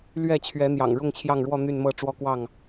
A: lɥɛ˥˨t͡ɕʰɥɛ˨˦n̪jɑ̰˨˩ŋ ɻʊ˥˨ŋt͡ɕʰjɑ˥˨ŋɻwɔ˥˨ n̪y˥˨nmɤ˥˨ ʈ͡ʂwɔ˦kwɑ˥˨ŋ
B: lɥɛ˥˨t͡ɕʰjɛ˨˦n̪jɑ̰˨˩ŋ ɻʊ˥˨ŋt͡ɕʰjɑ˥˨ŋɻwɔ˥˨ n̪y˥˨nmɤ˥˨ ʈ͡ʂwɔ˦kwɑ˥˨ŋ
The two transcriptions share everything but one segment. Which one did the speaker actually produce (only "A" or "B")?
A